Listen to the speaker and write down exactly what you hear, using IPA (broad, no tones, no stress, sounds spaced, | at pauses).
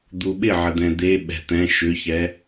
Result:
d̪ u ɓ ɪ ʕ ə d̪ ɛ̃ d̪ e ɓ ɛ̤ t̪ ɛ̃ ʃ ʏ ç ɛ